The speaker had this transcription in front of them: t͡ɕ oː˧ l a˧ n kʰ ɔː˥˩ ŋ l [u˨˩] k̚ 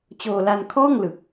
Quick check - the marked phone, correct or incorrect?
incorrect: ɯ˨˩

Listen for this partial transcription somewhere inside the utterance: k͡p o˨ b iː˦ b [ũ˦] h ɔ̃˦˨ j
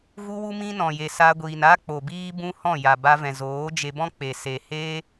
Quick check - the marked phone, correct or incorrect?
correct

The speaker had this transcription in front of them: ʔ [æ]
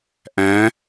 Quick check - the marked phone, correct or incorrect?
incorrect: æ̃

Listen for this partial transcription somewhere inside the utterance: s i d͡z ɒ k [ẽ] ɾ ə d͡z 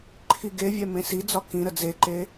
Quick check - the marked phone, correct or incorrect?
incorrect: ĩ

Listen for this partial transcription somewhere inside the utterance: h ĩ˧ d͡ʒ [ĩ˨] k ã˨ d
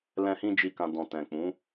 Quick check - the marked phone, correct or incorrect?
incorrect: i˨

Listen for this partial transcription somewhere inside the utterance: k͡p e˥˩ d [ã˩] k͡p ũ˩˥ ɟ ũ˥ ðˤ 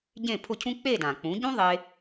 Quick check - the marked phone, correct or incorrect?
correct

